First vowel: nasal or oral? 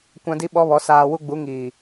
nasal